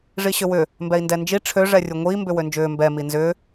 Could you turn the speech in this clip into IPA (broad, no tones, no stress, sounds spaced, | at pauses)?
ʐ i ɕ ʏ w ʏ | m b ɛ i̯ n d ɛ n d͡ʒ i ʈ͡ʂʰ ø ʐ ɛ rʲ u ŋʷ iː m b ʏ w ø n d͡ʒ ʏː m b ɛ m i n z ʏː